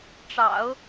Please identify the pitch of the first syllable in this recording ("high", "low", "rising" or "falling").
low